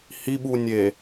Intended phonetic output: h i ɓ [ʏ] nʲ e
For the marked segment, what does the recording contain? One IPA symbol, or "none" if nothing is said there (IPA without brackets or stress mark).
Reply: u